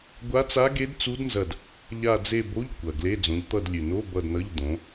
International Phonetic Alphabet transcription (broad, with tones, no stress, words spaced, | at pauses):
ɡʷa˦˥t͡sa˦˥ɡe˦˥d t͡su˦˥dnzɐ˦˨d | ʎa˦˨d͡ze˦˨bo˧˥˧ʎ kʷɐ˨˩ɡle˧˥˧ d͡zõ˨˦ʎt̪ʌ˦˨dlʲʉ˨˩no˧˥˧ bʌ˦˨dnʌ˧˥˧ʎd̪õ˨˦